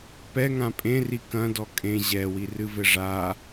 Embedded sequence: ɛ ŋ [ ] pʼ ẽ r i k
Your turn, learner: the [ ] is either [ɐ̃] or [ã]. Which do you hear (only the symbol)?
ã